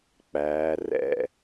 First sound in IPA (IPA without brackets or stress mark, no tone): k͡p